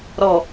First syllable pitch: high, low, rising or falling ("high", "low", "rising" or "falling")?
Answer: low